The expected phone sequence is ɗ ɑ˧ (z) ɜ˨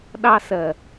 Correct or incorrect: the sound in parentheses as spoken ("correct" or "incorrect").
incorrect